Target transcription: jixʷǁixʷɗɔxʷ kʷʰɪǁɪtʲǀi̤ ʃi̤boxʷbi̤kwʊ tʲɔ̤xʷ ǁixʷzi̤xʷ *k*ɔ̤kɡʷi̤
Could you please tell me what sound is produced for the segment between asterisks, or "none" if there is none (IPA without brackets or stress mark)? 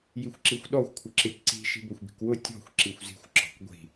ǁ